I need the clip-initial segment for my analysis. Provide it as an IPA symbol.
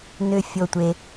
n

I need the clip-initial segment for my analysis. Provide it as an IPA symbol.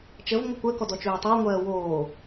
t͡ʃ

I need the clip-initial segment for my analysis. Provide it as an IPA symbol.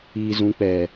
iː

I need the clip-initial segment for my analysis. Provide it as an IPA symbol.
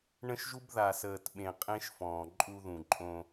ɳ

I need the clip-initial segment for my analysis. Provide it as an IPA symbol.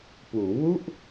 p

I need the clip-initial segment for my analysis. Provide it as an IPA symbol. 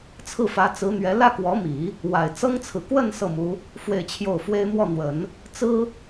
t͡sʰ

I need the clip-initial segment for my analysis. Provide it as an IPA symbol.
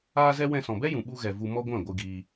aː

